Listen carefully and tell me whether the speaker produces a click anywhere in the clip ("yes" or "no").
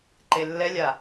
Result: yes